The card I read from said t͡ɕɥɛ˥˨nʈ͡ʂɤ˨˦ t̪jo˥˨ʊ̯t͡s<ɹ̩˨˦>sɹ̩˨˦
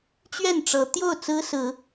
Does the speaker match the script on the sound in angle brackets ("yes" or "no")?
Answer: no